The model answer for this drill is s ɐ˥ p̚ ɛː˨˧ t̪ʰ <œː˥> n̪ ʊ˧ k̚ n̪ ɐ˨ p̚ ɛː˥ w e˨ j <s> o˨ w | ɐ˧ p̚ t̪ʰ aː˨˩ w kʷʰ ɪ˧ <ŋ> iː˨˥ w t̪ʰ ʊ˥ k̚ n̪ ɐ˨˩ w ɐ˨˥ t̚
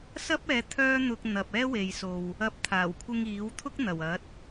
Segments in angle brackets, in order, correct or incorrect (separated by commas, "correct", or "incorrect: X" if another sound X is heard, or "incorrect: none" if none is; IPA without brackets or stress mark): correct, correct, correct